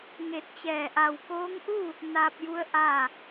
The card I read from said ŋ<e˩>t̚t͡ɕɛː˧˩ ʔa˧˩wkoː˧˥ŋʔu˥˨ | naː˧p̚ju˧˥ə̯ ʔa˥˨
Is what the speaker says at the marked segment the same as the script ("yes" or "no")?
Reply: no